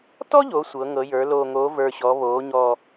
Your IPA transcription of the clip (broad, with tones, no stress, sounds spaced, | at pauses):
t ɔ˥ ʎ o˩˧ sʷ ɤ˩˧ ŋ ɤ˩˧ j ə˞˩˧ l oː˨˩ ŋ oː˩˧ v ə˞˨˩ ɕ ɔː˩˧ β oː˩˧ ɲ ɔː˨˩